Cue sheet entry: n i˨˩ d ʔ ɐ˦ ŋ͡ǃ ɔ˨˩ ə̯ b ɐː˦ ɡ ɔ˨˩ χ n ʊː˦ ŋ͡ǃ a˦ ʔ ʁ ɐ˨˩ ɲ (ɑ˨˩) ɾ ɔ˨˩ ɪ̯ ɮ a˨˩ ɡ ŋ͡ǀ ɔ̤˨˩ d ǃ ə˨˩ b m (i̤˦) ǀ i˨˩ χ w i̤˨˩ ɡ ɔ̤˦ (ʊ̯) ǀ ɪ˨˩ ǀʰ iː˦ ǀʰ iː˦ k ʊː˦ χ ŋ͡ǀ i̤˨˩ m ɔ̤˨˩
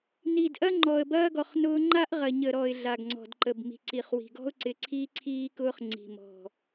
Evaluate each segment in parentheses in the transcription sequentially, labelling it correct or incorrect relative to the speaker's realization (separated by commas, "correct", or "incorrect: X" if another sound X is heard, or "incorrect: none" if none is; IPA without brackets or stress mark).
incorrect: ə˨˩, incorrect: i̤˨˩, correct